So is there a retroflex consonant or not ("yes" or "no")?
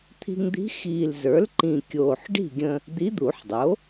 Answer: yes